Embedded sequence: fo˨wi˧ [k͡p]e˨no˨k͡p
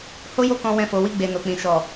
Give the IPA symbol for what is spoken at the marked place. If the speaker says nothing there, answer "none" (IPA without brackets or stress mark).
ɡ͡b